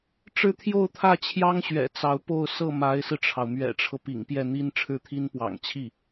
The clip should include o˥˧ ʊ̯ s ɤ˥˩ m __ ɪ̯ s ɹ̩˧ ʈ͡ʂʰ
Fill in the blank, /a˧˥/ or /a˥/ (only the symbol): a˧˥